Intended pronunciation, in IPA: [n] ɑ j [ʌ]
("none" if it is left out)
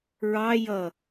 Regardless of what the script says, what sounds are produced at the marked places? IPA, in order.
ɹ, ʌ

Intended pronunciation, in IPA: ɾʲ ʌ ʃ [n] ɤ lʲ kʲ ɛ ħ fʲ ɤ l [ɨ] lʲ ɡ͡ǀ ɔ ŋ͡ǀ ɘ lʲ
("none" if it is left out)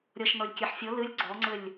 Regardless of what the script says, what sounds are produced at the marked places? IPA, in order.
n, ɨ

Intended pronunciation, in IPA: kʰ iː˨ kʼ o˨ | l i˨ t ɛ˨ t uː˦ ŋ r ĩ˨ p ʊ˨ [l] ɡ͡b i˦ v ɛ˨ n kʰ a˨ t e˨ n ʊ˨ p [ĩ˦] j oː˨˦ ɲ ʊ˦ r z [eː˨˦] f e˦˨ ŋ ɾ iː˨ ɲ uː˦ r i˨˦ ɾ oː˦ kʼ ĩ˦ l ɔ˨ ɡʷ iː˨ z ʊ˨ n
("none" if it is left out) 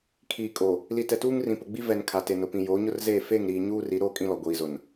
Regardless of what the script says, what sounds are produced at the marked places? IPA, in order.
none, ĩ˨, eː˦˨

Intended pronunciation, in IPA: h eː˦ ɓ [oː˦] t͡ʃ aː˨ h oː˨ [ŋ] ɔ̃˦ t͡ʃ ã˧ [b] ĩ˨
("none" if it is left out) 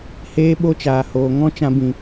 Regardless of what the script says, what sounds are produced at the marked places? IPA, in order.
o˦, ŋ, b

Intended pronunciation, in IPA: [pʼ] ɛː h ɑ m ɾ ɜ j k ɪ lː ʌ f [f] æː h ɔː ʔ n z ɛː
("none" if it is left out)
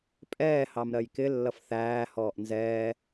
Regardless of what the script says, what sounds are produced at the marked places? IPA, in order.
pʼ, θ

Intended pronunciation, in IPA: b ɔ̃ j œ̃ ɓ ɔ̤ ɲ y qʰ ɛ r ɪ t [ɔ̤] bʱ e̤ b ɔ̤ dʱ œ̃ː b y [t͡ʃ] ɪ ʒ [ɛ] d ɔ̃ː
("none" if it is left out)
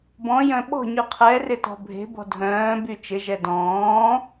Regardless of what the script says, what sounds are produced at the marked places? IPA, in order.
ɔ̤, t͡ʃ, ɛ

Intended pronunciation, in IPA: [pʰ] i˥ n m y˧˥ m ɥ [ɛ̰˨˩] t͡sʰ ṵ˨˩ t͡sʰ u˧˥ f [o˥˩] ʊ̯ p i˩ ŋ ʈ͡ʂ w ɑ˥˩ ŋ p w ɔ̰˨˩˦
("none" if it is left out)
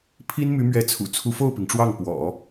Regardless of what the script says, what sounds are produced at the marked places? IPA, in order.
pʰ, ɛ˧˥, o˥˩

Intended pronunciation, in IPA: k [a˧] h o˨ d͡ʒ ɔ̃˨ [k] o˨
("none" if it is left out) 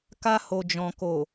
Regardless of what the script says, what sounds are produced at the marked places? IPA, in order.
a˧, k

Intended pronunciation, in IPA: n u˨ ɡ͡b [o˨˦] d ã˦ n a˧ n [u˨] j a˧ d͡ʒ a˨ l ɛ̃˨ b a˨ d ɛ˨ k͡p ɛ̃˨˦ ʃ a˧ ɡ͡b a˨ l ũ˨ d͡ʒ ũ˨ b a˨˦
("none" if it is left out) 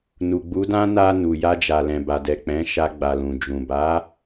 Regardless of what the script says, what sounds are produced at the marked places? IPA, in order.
u˨˦, u˨

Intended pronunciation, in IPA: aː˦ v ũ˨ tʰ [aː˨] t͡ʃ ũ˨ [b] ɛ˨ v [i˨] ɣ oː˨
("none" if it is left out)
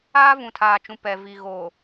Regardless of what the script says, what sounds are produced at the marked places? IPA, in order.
aː˨, p, i˨

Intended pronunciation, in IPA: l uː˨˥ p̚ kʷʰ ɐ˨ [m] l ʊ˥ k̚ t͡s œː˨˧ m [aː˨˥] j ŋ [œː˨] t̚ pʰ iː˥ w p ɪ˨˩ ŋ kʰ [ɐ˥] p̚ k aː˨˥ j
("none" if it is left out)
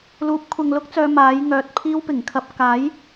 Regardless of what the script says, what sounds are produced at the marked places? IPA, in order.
ŋ, aː˨˥, œː˨˥, ɐ˧

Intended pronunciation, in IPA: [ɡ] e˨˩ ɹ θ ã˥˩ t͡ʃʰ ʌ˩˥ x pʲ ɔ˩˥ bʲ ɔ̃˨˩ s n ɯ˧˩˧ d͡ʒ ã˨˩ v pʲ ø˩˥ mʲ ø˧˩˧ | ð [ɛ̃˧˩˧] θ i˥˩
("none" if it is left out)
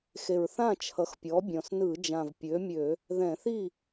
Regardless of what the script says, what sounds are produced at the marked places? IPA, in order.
x, ɛ̃˧˩˧

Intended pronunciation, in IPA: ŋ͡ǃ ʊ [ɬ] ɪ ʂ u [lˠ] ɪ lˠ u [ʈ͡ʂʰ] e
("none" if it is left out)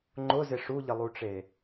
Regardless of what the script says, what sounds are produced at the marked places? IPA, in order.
z, ʎ, ʈ͡ʂ

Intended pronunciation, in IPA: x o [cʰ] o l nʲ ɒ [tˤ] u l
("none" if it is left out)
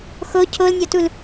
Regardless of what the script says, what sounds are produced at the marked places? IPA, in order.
cʰ, t

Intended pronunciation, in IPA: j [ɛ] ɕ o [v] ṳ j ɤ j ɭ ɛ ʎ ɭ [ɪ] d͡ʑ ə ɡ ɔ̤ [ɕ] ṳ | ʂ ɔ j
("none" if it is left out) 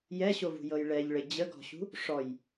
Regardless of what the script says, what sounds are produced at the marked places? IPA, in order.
ɛ, v, ɪ, ɕ

